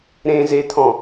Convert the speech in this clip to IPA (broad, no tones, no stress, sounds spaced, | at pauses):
ɾ ẽ z e t̪ʰ ɔ̃